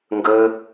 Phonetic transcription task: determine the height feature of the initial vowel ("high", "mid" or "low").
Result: mid